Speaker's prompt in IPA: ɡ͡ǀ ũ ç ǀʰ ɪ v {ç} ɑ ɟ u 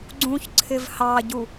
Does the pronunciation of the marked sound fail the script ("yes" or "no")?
yes